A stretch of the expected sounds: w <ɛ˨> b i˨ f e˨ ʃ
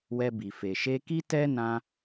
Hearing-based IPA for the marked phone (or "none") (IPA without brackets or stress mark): ɛ˧